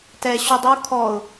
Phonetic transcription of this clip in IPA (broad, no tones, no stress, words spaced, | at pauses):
tɛ ɕudˤu kʰɔʊ̯